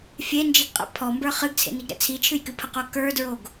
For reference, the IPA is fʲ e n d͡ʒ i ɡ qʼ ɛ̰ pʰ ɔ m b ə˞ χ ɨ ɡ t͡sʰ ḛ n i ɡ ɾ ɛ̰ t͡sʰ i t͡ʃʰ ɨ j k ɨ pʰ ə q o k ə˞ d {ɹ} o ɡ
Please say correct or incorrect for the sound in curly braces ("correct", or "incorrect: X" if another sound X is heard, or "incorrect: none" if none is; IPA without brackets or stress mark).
correct